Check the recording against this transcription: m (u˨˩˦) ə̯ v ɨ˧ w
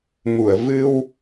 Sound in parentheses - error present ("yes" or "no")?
yes